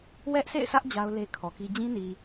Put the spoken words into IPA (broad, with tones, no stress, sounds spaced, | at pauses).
w ɛ˦ ʔ s ḛ˦˨ ɪ̯ sʰ ä˦ ʔ d͡ʑ a˦ ʊ̯ l e˦ kʰ ɔ˨ k i˦ d͡ʑ ĩ˦ n i˨